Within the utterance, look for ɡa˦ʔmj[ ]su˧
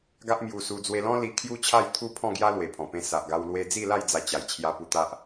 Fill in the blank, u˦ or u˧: u˧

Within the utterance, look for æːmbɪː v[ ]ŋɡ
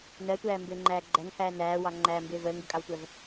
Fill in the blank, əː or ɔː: əː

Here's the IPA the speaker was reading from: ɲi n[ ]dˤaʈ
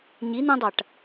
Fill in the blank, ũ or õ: ũ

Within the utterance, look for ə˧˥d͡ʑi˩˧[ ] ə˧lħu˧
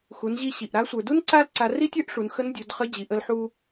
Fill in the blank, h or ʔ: ʔ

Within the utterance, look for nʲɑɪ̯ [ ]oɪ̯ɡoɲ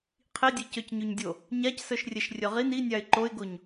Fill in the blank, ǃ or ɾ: ǃ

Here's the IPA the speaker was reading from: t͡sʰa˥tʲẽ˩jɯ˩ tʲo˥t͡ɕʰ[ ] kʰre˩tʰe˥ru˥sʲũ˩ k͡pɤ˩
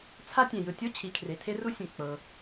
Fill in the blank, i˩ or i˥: i˩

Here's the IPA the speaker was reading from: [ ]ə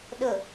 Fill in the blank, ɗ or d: ɗ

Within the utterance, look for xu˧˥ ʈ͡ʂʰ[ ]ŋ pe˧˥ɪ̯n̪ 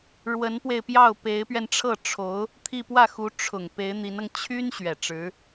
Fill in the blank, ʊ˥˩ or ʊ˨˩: ʊ˨˩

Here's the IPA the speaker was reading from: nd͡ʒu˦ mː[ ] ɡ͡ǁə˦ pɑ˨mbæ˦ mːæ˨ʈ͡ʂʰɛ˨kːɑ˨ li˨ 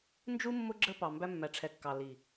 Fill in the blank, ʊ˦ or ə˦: ʊ˦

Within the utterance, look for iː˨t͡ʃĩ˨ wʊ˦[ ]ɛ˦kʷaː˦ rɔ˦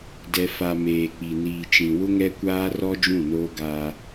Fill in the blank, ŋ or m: ŋ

